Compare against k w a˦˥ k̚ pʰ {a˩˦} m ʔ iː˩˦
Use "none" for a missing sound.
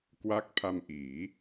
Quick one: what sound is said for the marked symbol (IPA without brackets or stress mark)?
a˧